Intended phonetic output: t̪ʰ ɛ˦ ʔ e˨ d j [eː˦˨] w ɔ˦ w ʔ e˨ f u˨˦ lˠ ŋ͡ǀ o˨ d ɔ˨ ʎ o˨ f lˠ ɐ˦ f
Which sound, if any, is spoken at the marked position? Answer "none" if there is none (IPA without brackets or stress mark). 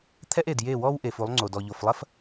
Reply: e˦˨